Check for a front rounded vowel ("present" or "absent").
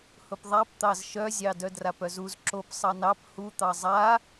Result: present